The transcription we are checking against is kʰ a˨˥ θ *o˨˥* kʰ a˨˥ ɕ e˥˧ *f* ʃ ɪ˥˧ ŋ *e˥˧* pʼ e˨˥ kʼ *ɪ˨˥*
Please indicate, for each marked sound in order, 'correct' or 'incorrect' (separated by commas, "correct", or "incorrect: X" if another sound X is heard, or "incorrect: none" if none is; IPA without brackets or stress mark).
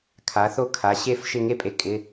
incorrect: o˥˧, correct, correct, incorrect: ɪ˧˥˧